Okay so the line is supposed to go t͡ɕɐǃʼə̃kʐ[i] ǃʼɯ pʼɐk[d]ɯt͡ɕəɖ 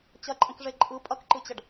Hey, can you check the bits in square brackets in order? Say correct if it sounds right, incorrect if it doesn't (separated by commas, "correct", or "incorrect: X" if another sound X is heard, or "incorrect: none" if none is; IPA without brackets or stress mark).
incorrect: e, incorrect: ǃ